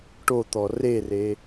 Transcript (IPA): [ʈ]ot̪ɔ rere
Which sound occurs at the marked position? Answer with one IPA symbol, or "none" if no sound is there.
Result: ʈ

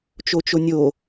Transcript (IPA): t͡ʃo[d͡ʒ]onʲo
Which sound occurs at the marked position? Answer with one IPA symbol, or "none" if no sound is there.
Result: t͡ʃ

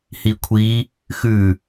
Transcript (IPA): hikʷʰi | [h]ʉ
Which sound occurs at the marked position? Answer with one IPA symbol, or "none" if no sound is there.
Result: x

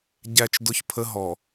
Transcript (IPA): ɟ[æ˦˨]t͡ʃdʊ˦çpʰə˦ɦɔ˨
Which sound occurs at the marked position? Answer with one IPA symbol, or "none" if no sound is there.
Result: æ˦˨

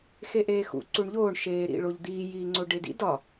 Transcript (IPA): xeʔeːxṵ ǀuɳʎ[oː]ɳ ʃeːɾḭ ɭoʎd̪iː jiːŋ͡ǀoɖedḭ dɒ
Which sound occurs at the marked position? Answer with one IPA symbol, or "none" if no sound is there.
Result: oː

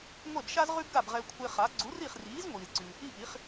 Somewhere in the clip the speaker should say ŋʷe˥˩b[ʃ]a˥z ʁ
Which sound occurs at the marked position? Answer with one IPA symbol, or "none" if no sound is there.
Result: ʃ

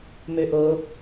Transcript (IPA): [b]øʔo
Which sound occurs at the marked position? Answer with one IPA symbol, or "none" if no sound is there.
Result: m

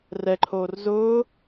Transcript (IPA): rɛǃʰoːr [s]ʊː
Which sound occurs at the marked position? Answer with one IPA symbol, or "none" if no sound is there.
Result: z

